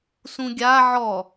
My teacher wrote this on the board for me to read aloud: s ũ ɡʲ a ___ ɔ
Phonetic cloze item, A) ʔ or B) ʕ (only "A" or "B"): B